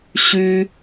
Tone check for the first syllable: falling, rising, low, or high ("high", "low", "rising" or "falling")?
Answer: high